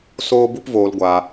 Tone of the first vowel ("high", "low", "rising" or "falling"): high